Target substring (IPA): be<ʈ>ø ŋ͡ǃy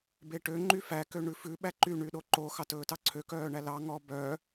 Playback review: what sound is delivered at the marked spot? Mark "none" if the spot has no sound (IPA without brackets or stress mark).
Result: ʈ